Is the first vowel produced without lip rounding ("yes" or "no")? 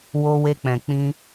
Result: no